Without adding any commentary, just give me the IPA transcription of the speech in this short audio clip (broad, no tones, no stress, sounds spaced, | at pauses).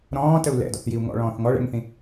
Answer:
ɾ ɔ̃ː t ə u̯ l ɛ̰ d ɔ̰ θ j i u̯ ŋ ɔ̰ ɭ ɔ̃ː θ ŋ ɔ ɭ ɛ̰ ŋ θ ĩ